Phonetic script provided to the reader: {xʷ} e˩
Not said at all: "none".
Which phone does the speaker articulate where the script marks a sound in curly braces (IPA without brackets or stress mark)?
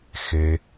x